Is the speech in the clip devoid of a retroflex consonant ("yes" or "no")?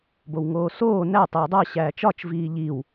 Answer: yes